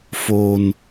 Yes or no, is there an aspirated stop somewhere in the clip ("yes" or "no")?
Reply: no